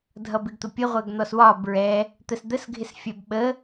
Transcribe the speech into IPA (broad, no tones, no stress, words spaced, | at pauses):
dʱʌbɪɡt̪ʊpʲə ʁʷɜɡn̪ɔswɒ bɹɛ | t̪əsd̪əs ɡʱɪsfʲæbɓə